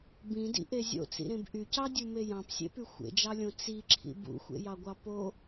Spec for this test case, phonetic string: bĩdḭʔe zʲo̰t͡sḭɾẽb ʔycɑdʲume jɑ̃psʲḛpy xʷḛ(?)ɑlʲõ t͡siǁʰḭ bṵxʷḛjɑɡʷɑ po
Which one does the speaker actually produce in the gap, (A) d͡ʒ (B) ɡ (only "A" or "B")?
A